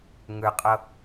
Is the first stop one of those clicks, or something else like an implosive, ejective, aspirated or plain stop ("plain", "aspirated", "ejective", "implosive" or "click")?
ejective